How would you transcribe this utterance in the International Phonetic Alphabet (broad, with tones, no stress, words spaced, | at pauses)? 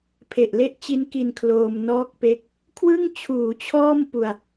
pʰe˨˩ʔle˥˩ʔt͡ɕi˦˥nki˧n kʰloː˧m nɔː˦˥k̚pe˦˥k̚ | kʰwɯ˥˩ŋt͡ɕʰuː˩˦t͡ɕʰɔː˥˩m pu˧a̯